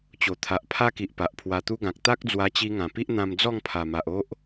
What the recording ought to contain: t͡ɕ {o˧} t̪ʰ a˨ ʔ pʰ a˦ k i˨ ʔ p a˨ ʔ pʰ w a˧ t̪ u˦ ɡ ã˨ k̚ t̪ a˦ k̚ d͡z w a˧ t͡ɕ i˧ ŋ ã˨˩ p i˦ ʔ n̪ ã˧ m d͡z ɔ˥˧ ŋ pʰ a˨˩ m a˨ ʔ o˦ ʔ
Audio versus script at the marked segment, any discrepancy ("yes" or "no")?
yes